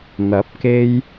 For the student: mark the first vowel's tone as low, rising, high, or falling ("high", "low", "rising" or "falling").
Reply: rising